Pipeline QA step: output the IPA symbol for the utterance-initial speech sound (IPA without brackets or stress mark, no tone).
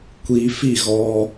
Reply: kʷ